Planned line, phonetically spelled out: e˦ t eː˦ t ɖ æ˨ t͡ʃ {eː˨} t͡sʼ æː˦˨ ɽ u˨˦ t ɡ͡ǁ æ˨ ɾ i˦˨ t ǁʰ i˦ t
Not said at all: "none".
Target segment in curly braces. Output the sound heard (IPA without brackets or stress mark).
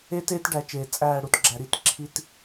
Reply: eː˨